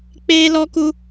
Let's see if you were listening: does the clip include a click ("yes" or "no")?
no